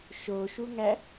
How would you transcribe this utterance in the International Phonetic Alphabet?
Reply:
ʃ o ʃ u ŋ æ

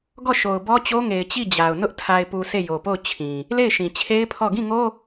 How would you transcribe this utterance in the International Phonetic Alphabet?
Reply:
ɡ ɔ˦˨ ʃ o˨ ʊ̯ b ɔ˦ t͡ɕ o˦ ŋ e˨ ɪ̯ t͡ɕ i˦˨ d͡ʑ a˨ ʊ̯ n ʊ˦ ʔ tʰ a˨ ɪ̯ p u˨ s e˦˨ j o˨ p o˦˨ ʊ̯ t͡ɕʰ ĩ˨ | l e˦˨ ɪ̯ ʃ ĩ˨ t͡ɕʰ e˦ ɪ̯ pʰ ɔ˦˨ ɡ ĩ˦˨ ŋ o˦

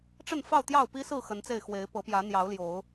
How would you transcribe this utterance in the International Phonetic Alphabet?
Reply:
ʈ͡ʂ ə˥˨ n f ɑ˥˨ ʊ̯ t̪ j ɑ˥˨ ʊ̯ p i˦ s ɹ̩˥˨ x ə˨˦ n t͡s e˥˨ ɪ̯ x w e˨˦ ɪ̯ p ɤ˨˦ p j ä˨˦ n̪ j ɑ˨˦ ʊ̯ l j o˨˦ ʊ̯

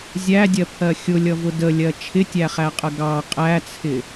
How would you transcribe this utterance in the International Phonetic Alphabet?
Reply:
zʲ æ dʲ ɜ pʰ ɜ xʲ ʊ lʲ ʌ v ʊ d ə lʲ ɜ t͡ʃʰ ɪ tʲ æ χ æ qʼ ə ɡ ɑ qʼ æ t͡sʰ ɪ

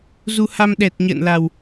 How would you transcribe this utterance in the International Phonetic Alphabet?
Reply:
z u˧ h a˧ m ɗ ɛ˨˩ t̚ ɲ ə̰ː˧˨ n l a˨˩ w

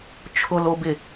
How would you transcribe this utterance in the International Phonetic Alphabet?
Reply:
t͡ʃʰ ʊ l o b ɪ

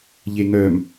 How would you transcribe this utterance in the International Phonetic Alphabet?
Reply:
ʎ e ŋ œ m

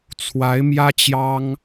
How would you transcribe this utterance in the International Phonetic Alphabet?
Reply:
t͡sʰ w a˧˥ ɪ̯ m j ä˥ t͡ɕ j ɑ˥ ŋ

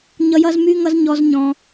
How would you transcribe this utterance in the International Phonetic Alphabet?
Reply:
ɲ ʌ˥ j ʌ˥ z m y˥ ŋ ʌ˥ z ɲ ɔ˥ z ɲ ɔ̃˥

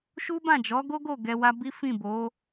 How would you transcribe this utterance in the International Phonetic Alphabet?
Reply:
ʃ u˦ b ã˦˨ d͡ʒ ɔ˨˦ ɡ o˦ ɡ o˦˨ ɡ ɛ˧ w a˦ b i˦ f ĩ˦˨ b o˨˦

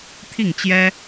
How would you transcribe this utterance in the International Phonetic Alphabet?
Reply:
t̪ʰ i˥˩ ŋ t͡ɕ j ɛ˥

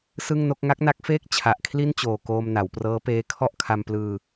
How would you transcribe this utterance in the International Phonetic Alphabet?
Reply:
s ɯ˥˩ ŋ n o˥˩ k̚ ŋ a˦˥ k̚ n a˦˥ k̚ f eː˥˩ k̚ t͡ɕʰ a˨˩ ʔ kʰ l i˥˩ n t͡ɕ oː˨˩ k oː˧ m n a˩˦ w p r ɤː˦˥ p eː˦˥ kʰ ɔ˥˩ ʔ kʰ a˧ m p l ɯː˧

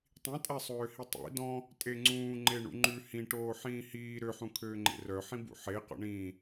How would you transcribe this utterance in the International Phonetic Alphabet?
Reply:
tˤ ĩ tʼ æ sˤ øː h i tˤ ḭ d ɔ̃ | tʼ e ŋ͡ǀ ũː ŋ͡ǃ e ɳ ṵ ŋ͡ǃ ʉ h ĩ ʈ oː ħ ĩː h iː ɾ ø ħ ũ kʰ øː ŋ͡ǃ ḛ r œ ħ ĩ b ṵ ħ e q ɔ̰ ɳ ĩː

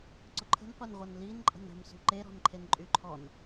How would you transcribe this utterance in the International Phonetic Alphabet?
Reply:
ǀ ʊ ǃʰ ə̤ n qʷ e n ʁʷ ə n l i n ǃʼ ə̤ n ə̤ m s ṳ ǃ e ɾ ɔ̤ n ǃʰ e n ǃʼ y ǃʰ ɔ n

